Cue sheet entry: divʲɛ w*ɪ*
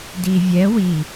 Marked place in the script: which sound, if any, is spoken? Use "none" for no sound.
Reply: i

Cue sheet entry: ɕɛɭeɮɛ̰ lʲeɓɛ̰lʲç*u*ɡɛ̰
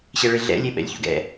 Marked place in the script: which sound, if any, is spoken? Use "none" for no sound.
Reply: ṵ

